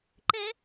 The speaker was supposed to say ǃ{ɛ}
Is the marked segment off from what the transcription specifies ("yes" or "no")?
no